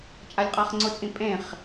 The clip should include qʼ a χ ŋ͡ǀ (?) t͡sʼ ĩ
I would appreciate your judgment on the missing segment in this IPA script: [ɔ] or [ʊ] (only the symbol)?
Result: ʊ